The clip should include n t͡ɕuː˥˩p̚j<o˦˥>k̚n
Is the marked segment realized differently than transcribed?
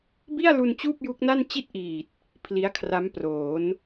yes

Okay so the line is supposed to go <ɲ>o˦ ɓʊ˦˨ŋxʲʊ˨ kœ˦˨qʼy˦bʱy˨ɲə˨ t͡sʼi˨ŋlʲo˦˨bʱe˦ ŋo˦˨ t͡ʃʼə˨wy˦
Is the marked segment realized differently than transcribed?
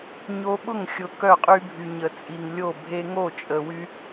no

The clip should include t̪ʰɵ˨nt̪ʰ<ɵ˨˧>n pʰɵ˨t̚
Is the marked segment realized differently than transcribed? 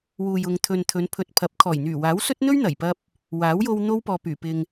no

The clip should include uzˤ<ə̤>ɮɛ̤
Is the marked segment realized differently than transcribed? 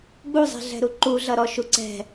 yes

